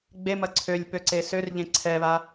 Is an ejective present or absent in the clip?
absent